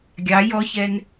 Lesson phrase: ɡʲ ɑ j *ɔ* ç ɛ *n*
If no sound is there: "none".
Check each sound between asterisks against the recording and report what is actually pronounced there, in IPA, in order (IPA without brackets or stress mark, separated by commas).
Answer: ɔ, n